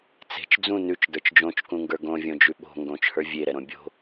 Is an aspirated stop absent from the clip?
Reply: yes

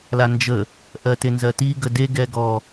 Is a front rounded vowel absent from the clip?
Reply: yes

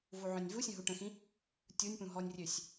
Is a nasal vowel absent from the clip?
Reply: no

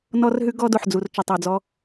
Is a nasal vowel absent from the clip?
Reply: yes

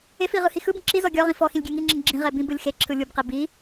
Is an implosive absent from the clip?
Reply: yes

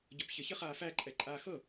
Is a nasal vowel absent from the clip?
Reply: yes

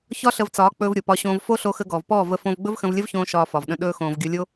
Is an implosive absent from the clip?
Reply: no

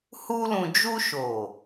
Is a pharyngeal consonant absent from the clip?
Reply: yes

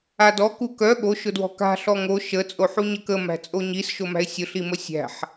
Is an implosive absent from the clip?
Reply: no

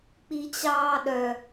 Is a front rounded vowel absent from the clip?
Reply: no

